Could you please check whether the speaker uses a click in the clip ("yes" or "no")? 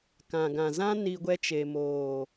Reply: no